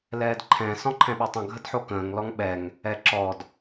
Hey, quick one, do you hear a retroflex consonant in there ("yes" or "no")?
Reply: no